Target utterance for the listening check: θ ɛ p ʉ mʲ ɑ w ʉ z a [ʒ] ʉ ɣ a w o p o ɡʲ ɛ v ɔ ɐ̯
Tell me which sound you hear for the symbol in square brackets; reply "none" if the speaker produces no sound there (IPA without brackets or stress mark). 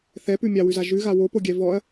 ʒ